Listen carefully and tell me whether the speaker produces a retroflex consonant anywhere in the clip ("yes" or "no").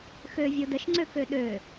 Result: no